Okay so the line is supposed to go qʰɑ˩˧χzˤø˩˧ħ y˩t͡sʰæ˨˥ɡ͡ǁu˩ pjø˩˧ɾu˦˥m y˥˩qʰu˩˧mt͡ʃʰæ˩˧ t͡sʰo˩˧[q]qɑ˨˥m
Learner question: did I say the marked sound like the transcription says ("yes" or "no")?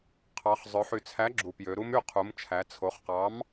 no